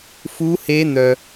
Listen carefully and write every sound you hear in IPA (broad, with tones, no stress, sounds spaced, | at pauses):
f u˦˥ h e˦˥ n̪ œ˧